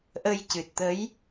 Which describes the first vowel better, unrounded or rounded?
unrounded